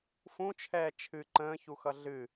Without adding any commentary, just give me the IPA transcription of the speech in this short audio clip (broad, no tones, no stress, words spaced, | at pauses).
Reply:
fũt͡ʃʰɛː t͡ʃʰɨ ǃə̃ːçuxʌ ɮɨ